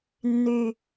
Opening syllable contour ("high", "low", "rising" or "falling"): low